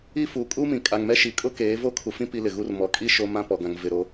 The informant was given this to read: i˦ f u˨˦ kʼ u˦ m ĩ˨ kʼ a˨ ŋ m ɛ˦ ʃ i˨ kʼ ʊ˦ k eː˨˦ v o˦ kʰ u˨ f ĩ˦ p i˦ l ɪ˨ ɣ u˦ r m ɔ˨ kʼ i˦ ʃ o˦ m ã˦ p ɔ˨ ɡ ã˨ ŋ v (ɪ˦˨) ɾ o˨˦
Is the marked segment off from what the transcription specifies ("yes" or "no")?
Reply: yes